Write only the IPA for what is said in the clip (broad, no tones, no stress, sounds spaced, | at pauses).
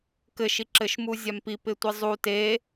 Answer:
k ɘ ʃ i ǁ ɘ ʃ m u zʲ a m p i p ɪ tʷ i zˤ u t e